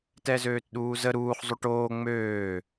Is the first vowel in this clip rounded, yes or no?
no